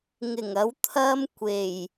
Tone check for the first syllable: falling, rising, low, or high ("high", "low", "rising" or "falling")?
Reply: low